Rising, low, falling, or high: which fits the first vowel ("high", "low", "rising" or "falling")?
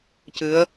rising